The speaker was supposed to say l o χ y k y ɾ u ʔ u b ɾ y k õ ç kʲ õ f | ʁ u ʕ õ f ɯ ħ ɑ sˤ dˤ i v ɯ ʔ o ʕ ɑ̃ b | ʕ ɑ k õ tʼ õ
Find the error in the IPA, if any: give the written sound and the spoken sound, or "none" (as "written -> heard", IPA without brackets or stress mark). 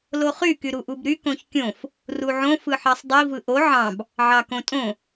ʁ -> r